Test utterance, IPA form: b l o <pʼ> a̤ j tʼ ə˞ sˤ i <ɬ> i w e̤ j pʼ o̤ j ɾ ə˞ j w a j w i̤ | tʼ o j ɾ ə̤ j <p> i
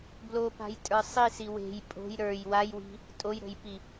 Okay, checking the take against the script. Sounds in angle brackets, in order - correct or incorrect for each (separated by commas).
incorrect, incorrect, correct